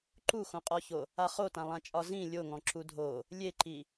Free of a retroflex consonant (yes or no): yes